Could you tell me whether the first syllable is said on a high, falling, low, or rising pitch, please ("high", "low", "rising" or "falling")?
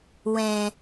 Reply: low